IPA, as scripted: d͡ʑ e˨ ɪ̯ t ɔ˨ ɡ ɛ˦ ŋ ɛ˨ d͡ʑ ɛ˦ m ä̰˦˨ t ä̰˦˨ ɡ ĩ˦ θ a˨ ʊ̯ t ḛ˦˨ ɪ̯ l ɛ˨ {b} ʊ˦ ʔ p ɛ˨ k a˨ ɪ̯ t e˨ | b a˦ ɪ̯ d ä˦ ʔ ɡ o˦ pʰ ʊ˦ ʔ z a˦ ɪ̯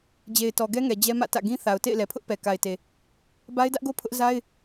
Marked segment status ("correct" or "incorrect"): incorrect